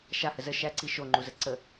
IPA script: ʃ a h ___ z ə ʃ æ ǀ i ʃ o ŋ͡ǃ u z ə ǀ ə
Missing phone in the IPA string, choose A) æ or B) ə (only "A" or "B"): B